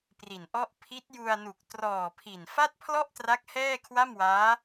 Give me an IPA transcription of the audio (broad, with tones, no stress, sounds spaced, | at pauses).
p r i˨˩ n ʔ ɔ˥˩ ʔ pʰ i˦˥ t̚ j u˧ a̯ n u˨˩ k̚ t r ɔː˨˩ pʰ i˨˩ n f a˥˩ t̚ pʰ l ɔ˥˩ ʔ t r a˦˥ k̚ h ɛː˥˩ kʰ w a˥˩ m w aː˦˥